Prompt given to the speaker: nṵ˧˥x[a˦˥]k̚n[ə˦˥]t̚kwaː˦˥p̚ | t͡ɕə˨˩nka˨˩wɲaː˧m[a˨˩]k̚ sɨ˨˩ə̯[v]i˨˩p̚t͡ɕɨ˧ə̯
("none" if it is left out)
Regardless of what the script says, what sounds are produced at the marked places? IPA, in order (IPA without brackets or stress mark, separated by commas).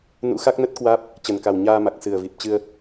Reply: a˦˥, ə˦˥, a˨˩, v